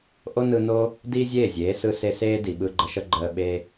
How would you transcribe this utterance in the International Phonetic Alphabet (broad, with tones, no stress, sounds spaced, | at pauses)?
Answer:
ʔ o˦ n ɯ˧ n o˦ | d iː˦ zʲ eː˦˨ zʲ eː˨˦ s ɯ˧ s e˧ s eː˦ d i˨ ɓ ɯ˧ ɡ͡ǃ ə˧ ʃ ə˦ ɡ͡ǃ əː˧ ɓ eː˦